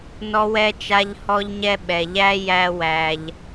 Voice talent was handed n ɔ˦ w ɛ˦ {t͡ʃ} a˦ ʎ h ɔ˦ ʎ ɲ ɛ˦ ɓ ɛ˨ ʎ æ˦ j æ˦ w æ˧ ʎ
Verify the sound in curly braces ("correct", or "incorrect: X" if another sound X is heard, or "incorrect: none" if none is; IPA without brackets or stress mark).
correct